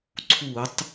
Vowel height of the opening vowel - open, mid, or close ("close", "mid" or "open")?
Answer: close